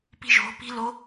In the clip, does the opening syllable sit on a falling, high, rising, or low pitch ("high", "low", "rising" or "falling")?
high